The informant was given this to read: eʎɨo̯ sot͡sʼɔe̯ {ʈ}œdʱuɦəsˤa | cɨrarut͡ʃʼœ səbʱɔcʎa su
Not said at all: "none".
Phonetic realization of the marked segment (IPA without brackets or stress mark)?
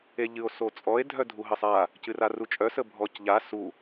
dʱ